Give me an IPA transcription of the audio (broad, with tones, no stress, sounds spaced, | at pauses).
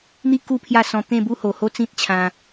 n̪ i˦ k u˦ pʰ j a˥˧ s ɔ̃˧ t̪ ẽ˥˧ b u˦ h o˨˩ h o˦ t͡s ĩ˦ t̚ t͡ɕʰ ã˧